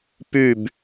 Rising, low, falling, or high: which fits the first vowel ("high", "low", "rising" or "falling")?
falling